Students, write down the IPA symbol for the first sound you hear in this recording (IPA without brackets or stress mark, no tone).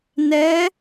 n